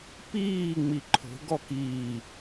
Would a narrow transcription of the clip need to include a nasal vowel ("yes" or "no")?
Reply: no